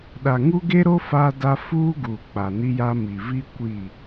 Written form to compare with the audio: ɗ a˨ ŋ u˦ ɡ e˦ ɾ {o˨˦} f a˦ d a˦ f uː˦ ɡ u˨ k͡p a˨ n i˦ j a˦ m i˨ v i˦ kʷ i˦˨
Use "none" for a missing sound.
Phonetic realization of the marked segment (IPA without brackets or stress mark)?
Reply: o˦